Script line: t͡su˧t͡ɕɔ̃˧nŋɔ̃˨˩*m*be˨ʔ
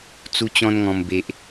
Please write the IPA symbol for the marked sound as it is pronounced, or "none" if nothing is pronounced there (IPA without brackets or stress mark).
m